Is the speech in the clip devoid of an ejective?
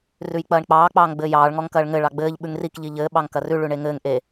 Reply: yes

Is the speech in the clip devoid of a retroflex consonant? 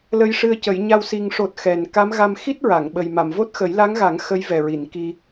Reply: no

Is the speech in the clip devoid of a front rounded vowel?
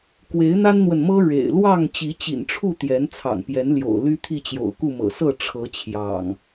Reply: no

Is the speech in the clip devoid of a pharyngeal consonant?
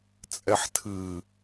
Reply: no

